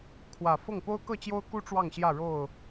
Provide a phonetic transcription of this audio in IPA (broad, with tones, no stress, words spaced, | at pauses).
kʰwä˨˩fɤ˥˨ŋ po˦ʊ̯kɤ˥˨t͡ɕjo˦ʊ̯ku˦ ʈ͡ʂwɑ˥˨ŋɕjä˥˨ɻo˥˨ʊ̯